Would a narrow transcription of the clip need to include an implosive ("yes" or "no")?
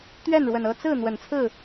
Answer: no